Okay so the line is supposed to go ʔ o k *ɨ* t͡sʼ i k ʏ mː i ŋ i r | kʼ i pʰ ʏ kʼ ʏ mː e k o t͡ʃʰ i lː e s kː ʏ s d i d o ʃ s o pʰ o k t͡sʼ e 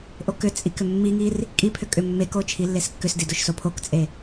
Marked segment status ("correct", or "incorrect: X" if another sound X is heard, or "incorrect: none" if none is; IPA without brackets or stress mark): incorrect: ʏ